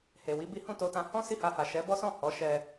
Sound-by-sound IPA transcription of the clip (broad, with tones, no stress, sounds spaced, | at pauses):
h e˨ w i˨˦ b i˦ h ũ˦˨ t o˧ t ã˧ h ɔ̃˦ s i˦˨ h a˧ h a˨ ʃ ɛ˨˦ b ɔ˦ s ɔ̃˦˨ h ɔ˨˦ ʃ ɛ˧